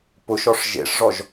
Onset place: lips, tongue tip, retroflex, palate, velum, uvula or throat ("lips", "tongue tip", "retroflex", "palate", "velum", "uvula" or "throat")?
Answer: lips